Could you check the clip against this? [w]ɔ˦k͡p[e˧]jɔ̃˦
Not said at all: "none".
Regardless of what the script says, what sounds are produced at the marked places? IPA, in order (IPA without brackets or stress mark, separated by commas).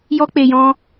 j, e˧